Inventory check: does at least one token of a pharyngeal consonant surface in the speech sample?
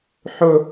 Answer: yes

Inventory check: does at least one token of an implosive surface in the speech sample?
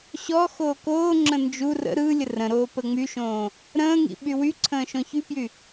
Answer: yes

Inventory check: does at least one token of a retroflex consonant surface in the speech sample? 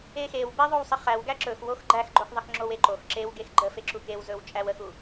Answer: no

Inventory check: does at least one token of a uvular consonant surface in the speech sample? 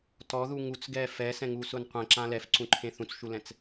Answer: yes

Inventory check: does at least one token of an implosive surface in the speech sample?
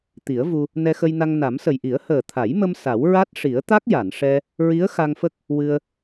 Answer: no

